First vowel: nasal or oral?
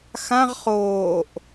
nasal